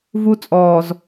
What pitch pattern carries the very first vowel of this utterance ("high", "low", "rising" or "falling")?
high